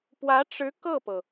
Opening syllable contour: rising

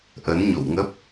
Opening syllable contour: rising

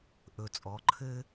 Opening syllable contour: low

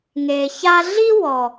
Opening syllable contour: low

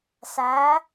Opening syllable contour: rising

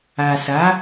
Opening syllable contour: low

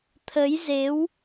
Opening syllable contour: rising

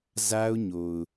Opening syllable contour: high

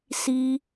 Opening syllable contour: high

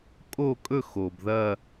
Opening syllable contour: falling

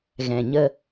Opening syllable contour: low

